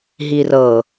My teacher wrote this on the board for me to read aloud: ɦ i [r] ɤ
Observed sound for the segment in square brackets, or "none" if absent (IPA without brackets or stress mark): r